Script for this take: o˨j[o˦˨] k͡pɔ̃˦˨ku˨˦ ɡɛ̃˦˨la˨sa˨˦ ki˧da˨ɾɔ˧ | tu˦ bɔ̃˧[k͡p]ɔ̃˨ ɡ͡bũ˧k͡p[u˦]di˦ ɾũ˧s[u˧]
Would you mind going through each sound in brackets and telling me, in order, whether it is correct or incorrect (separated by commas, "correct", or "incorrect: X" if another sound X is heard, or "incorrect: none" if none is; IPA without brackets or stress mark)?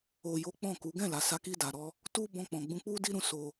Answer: incorrect: o˨˦, correct, correct, incorrect: o˧